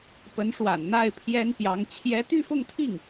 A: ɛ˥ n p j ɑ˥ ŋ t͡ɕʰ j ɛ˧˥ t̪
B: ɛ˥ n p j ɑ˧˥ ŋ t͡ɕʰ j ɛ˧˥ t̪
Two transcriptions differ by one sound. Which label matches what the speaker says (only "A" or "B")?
B